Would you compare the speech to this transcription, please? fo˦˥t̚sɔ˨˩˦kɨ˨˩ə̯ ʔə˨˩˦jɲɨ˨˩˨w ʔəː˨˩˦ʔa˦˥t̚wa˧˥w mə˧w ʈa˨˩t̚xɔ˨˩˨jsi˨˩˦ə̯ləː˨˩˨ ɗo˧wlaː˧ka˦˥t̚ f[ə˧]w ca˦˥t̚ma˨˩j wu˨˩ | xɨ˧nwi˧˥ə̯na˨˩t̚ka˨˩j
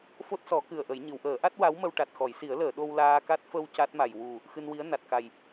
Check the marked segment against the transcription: correct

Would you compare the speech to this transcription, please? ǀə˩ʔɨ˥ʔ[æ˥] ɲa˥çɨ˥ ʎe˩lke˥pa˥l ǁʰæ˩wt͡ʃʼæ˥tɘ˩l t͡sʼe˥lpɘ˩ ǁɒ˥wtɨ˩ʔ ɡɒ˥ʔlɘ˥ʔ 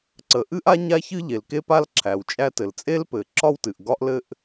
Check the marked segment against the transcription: incorrect: a˥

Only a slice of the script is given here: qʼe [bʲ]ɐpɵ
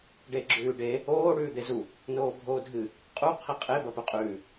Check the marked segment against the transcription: incorrect: b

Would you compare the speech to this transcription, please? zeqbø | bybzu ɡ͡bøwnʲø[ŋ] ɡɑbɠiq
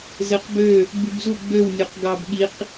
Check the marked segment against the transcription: incorrect: q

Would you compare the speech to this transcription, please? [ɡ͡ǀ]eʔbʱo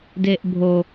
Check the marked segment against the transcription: incorrect: d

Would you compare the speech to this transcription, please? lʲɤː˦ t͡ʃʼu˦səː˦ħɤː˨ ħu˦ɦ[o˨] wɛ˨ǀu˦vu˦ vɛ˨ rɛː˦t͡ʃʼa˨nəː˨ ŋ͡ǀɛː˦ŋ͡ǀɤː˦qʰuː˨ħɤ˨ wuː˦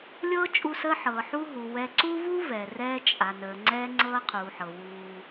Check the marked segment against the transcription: incorrect: u˨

